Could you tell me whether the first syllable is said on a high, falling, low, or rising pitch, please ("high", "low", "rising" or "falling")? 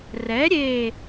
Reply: rising